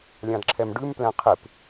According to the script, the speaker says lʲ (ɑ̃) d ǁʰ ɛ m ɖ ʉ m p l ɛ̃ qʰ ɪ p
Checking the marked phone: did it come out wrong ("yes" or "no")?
no